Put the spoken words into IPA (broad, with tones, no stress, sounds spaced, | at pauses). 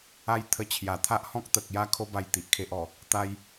a˦ j t̪ʰ ə˧ t͡ɕʰ j a˨˩ t̪ʰ a˦ ʔ h ɔ̃˦ k̚ t̪ ə˨ k̚ j a˧ kʰ o˦ b a˧ j t̪ i˨ ʔ kʰ e˦ ʔ ɔ˨˩ | t̪ a˦ j